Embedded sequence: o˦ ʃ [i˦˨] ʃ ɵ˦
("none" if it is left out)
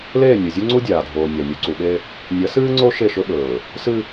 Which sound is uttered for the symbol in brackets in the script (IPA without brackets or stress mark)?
e˦˨